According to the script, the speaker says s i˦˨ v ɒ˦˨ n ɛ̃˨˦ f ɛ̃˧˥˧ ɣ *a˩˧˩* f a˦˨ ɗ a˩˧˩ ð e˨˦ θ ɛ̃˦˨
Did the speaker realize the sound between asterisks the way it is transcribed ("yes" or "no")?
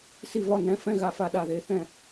yes